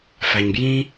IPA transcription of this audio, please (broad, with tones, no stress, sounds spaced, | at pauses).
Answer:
f æ˨ ɲ b j ĩ˦